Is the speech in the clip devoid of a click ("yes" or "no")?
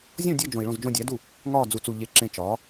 no